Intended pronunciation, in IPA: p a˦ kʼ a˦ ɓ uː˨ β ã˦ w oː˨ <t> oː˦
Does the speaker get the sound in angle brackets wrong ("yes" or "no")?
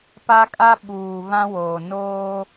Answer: yes